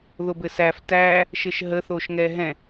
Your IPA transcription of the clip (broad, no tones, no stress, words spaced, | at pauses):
ðobɘsæf tæ | ʃɘʃɦə θoʃŋɛɦɛ̃